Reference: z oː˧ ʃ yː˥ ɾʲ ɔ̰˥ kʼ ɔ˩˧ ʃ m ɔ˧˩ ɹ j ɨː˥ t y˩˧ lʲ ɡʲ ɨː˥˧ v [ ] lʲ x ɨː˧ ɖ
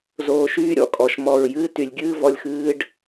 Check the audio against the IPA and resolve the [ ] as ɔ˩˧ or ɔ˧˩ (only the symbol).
ɔ˧˩